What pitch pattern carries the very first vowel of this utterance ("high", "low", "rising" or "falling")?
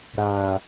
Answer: low